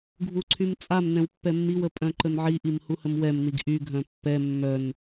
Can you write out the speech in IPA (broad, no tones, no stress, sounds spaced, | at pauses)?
ɡʱ u ǀʰ y m t͡sʼ a m n ɛ̃ w pː ɛ mː i w ə pʼ œ̃ ǃ ə n ʕ i ʔ i m h u h ə m w ɛ m n i ɡ ʔ y ɡʱ œ̃ pː ɛ mː œ n